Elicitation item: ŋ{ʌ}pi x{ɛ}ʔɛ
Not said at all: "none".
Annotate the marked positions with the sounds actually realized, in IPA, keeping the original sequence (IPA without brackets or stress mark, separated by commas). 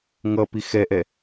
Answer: ʌ, ɛ